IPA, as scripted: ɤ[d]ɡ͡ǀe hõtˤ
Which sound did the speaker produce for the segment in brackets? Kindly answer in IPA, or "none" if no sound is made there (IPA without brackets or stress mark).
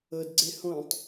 d